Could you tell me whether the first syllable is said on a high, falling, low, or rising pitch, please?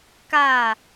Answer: falling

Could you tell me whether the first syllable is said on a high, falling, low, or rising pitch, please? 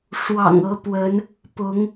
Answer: low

